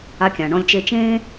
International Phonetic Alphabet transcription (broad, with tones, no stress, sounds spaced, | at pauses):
a˧ kʲ ã˩ ɳ ɔ̃˧ lʲ t͡ʃ e˧ t͡ʃ ẽː˥